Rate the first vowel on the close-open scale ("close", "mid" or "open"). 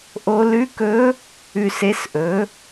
mid